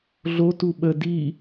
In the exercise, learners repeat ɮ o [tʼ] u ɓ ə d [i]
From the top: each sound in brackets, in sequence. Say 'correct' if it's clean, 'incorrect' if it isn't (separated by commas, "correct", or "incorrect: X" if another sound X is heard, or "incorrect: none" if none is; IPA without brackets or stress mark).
incorrect: t, correct